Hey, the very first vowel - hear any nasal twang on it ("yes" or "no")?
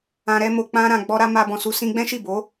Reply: yes